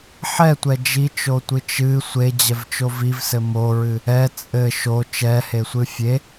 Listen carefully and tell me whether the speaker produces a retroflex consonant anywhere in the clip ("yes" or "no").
no